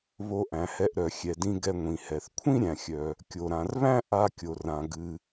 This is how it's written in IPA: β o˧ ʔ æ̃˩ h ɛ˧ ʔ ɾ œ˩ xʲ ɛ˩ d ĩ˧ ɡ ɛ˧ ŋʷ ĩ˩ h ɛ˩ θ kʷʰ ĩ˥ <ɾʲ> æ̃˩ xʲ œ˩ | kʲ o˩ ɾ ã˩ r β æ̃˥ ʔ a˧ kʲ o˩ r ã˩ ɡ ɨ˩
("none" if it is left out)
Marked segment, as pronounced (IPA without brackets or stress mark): ɾʲ